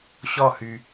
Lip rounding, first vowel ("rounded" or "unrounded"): rounded